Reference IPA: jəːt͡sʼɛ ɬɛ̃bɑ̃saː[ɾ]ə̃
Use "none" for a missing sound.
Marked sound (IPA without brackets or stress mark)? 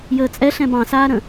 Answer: ɾ